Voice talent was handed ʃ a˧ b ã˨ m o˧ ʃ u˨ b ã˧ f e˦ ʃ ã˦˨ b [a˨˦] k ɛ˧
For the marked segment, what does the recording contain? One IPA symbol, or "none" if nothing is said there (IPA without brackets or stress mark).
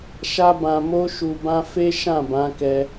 ã˨˦